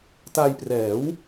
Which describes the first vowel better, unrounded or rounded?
unrounded